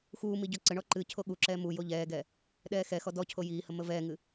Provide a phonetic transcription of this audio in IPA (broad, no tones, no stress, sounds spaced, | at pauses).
x uː m i ɟ ɔ ǀ ə ɳ ɔ ǃ ɨ cʰ o ɠ u ǁ ɛː m u j o ʎ ɛː ɡ ɛ | ɗ ɛː x ɛ x ɔ d ɔ cʰ o j iː h ə m ə v ɛː ŋ ɨ